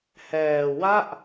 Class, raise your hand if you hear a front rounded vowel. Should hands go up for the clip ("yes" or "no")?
no